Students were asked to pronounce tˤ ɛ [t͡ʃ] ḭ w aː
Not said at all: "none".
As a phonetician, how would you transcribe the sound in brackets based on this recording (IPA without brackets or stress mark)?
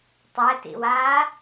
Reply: t